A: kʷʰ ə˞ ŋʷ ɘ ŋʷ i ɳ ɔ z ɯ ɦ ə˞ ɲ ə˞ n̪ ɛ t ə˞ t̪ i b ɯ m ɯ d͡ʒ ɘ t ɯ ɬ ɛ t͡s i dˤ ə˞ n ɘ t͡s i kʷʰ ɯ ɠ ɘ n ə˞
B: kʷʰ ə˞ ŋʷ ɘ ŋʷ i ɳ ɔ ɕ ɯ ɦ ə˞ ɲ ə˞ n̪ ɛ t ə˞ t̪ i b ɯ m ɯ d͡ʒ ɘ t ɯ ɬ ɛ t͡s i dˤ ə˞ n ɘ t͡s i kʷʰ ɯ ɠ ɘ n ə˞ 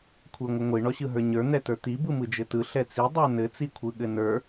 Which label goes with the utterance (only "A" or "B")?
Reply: B